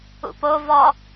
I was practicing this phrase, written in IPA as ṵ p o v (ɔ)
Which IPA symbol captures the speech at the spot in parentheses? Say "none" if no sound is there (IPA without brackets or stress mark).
ɔ